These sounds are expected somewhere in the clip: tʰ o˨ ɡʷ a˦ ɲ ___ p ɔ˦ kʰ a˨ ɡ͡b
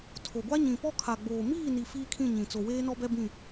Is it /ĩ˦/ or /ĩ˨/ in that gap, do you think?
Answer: ĩ˨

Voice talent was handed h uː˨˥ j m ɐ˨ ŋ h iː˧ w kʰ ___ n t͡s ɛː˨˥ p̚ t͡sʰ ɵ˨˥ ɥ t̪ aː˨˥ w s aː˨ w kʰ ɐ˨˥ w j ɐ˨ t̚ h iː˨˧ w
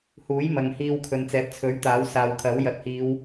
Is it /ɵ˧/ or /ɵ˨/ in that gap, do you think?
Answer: ɵ˨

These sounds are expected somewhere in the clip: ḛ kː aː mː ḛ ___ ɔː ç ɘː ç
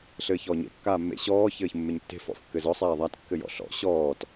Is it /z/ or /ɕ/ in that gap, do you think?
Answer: ɕ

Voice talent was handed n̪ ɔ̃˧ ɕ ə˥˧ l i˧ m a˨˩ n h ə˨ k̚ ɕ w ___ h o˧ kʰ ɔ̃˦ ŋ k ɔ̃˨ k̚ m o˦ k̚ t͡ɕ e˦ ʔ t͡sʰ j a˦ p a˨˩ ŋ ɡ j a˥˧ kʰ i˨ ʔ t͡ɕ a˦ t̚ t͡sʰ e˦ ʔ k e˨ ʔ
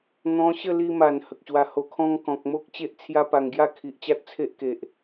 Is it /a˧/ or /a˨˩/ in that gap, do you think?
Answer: a˧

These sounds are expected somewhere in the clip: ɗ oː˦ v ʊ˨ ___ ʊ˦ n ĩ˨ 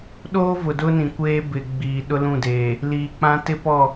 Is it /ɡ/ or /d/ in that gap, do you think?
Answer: d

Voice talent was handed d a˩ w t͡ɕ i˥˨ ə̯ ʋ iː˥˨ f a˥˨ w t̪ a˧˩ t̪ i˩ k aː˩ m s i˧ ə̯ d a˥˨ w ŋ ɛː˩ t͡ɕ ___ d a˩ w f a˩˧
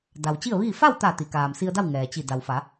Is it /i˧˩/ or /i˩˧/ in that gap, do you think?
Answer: i˧˩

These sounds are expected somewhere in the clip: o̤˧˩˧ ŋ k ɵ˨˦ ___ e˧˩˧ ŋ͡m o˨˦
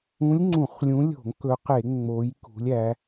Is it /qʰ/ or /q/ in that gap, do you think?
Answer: q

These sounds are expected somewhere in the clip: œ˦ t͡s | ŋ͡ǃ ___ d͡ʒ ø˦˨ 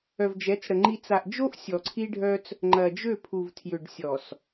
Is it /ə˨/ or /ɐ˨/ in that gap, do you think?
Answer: ɐ˨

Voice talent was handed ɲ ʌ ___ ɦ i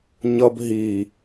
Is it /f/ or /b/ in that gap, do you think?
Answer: b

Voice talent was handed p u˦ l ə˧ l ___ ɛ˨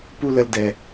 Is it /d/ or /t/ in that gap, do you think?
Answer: d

